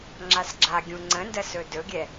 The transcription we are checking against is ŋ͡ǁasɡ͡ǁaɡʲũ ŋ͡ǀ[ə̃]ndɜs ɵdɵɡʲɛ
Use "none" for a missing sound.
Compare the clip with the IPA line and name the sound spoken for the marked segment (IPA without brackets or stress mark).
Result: ə̃